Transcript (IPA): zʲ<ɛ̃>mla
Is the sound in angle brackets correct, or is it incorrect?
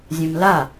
correct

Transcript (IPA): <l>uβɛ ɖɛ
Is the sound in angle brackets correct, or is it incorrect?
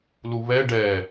correct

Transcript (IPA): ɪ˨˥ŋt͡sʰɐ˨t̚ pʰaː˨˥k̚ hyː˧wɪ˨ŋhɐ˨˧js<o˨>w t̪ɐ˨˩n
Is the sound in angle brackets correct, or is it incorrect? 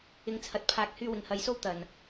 incorrect: o˥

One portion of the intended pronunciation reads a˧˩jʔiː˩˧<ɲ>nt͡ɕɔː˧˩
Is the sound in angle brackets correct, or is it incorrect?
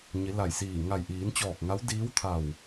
incorrect: none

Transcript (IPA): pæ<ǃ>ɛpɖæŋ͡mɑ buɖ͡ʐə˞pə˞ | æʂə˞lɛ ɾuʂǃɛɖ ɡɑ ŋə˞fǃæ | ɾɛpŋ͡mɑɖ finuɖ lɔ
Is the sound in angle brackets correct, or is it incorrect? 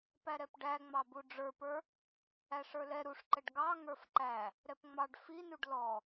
incorrect: ɾ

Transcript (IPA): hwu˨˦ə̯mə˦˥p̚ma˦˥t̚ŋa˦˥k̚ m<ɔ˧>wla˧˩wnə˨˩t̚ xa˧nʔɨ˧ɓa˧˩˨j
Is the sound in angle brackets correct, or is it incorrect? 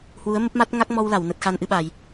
correct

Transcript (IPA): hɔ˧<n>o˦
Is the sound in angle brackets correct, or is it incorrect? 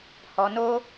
correct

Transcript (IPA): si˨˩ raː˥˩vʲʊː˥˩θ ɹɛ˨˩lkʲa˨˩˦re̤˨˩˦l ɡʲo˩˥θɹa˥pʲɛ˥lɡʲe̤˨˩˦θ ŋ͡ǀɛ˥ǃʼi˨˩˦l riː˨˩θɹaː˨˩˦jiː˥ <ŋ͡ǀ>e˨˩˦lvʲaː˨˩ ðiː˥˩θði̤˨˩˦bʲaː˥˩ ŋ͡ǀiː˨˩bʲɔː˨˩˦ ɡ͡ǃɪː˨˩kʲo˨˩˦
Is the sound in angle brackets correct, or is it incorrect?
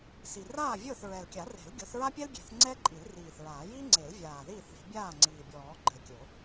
correct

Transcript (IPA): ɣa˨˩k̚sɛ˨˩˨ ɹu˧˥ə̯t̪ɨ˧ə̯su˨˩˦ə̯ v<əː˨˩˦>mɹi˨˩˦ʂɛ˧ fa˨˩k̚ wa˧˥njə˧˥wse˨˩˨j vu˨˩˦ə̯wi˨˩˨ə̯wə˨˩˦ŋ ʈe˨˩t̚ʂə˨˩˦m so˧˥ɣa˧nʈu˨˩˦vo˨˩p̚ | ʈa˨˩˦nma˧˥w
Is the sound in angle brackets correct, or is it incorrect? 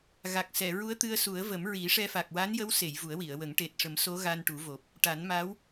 incorrect: ə˨˩˦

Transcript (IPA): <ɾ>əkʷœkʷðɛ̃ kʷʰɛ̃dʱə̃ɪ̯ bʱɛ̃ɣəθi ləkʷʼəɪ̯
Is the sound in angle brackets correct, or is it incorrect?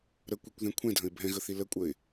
correct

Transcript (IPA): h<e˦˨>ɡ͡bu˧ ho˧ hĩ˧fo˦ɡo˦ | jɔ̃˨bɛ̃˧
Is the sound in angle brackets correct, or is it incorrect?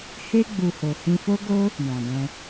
incorrect: e˦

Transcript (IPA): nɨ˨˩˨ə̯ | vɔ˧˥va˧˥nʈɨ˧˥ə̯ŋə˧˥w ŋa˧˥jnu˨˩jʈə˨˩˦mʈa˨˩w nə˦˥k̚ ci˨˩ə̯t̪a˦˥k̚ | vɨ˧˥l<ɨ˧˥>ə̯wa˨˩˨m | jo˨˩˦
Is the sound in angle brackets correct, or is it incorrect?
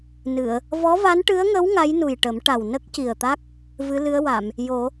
correct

